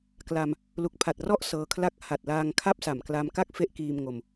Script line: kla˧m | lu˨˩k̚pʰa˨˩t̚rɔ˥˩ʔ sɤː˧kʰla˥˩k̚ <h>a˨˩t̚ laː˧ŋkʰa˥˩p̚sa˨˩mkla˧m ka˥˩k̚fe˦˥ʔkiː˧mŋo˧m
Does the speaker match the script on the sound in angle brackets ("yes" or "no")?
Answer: yes